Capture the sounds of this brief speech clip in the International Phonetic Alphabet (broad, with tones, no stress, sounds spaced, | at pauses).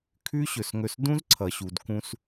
kʰ ʉ˥ ɕ ɵ˩ s ŋ ɵ˧ s d ũ˥ z ǀʰ ʌ˩ ɕ u˩ d k ũ˧ s